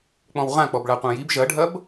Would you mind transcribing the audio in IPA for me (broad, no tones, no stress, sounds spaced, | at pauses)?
k͡p ɔ̃ w ʁ ã k͡p ɔ b ɭ a qʷ ã j i b ʒ ɐ ɖʱ ɐ b